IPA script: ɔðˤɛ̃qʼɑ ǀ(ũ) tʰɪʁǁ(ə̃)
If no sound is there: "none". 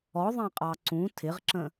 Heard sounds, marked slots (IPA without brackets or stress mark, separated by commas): ũ, ə̃